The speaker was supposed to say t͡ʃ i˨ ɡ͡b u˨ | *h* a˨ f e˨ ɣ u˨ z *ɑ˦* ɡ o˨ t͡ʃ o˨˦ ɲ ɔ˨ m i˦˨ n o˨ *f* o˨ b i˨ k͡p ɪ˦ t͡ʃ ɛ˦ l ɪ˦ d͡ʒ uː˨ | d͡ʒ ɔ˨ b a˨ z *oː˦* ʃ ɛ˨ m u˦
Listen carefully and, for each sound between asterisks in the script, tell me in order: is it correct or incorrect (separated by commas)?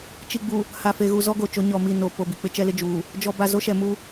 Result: correct, incorrect, incorrect, incorrect